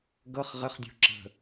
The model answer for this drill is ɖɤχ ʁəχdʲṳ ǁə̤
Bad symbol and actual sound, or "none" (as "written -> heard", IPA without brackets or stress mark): ɖ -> ɡ